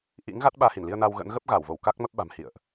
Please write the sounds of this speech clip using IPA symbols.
ʔ ḭ˧˥ ŋ ɣ a˦˥ t̚ ɓ aː˧ h i˧˩ n l i˧ ə̯ n a˧ w ɣ ə̰˧˥ n ɣ ə˦˥ p̚ ɣ a˧˩ w v o˧˩ w k a˦˥ k̚ m ə˦˥ p̚ ɓ a̤˨˩ m h ḭ˧˨ ə̯ ʔ

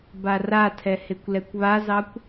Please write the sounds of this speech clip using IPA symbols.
b a r a tʰ ɛ h e kʷ l ɛ kʷ β a z ɑ kʷ

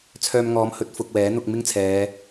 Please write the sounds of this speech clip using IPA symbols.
t͡sʰ œː˧ m ŋ ɔː˨˥ m h ɵ˨˥ t̚ f ʊ˨ k̚ w ɛː˨˥ n̪ ʊ˧ k̚ m ɪ˥ ŋ t͡sʰ ɛː˨˧

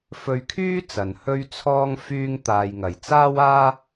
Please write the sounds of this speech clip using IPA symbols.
f ɵ˧ ɥ kʰ yː˥ t͡s ɐ˨ n h ɵ˥ ɥ t͡sʰ ɔː˥ ŋ f yː˥ ŋ t̪ aː˧ j ŋ ɐ˨ j t͡s aː˥ w aː˥

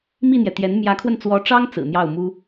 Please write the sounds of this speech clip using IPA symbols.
m i˥˩ n̪ j ɛ˩ t̪ j ɛ˧˥ n m j ä˧˥ kʰ w ə˧ n t͡s w ɔ˧˥ ʈ͡ʂ ɑ˥ ŋ t͡s ɹ̩˨˩ n̪ j ɑ˥˩ ʊ̯ m u˥

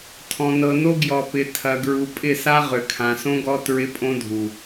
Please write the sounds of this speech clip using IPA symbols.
tʰ ɔ̃˨ n ɤ˨ n o˦ ɡ j ɔ˨ p ɪ˨ tʰ ɐ˨ ɡ ɹ u˨ pʼ ɪ˦˨ s a˦ ʁ ʏ˨ kʰ ã˨ s õ˦ ɡ ɔ˦ t ɹ ɪ˦ pʼ õ˦ dʱ u˨

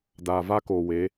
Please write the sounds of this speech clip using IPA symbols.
d aː˨ v a˦ k oː˨ w e˨˦

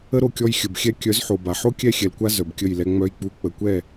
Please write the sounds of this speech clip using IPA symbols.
ə˦ ɾ o˧ kʲ ɔ˧ j xʲ ə˨ b xʲ ɛ˧ kʲ œ˨˦ z ħ o˨ b a˨ ħ o˦ kʲ ɛ˦˨ xʲ ɛ˨ l kʷ a˧ z œ˨ b kʲ ə˦˨ j l ɛ˧ ŋ͡m œ˧ j k͡p u˨˦ k͡p ə˨ kʷ ɛ˦˨

